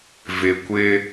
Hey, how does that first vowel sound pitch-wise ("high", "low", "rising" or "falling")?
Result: low